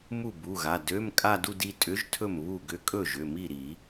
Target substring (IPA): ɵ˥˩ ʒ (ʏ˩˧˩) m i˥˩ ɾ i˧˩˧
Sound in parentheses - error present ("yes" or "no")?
no